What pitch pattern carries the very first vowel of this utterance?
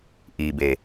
low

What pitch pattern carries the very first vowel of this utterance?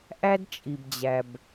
high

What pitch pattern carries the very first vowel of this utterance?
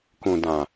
low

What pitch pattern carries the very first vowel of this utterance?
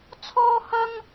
high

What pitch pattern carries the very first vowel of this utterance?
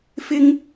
high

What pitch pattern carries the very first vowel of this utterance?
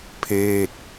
falling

